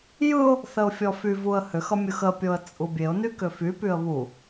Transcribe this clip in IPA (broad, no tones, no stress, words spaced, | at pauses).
jɯʊ̯ | θəʊ̯fʲɔfyvuə̯ hʏxʌ mʲɯxəpʲoə̯ t͡sʼubʲeʊ̯ny kʏfypyə̯ βu